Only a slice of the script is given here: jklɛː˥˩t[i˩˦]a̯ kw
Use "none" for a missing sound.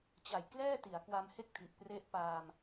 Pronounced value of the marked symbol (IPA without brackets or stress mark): i˩˦